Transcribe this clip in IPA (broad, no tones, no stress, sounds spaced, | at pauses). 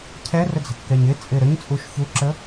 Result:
cʰ ɛ r ə d͡z ə̤ kː ɛ ɲ ɪ t͡sʼ ɪ ɾ ə ɲ t͡sʼ u ʃ ç u ǁ ə